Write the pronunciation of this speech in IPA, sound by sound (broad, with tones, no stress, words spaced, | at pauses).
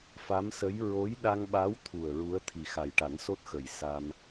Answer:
fa˧˥msə˧˥j ɹo˧˥jɗa˧ŋɓa˧˥w t̪ʰu˨˩ə̯ɹu˧˥ə̯ t̪ʰi˨˩xa˨˩jʈa˨˩˦nso˦˥t̚ xə˨˩jsa˧m